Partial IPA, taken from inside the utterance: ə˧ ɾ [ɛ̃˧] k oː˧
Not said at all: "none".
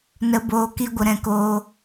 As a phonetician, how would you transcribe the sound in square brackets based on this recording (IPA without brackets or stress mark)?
ɛ̃˧